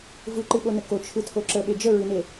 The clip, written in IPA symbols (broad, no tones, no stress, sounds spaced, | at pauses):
v ɯ ǃ ɨ ɓ o n ə k o t͡ʃʰ ɯ tʰ o ǁ ə ɓ e d͡ʒ ə ɹ ɨ n e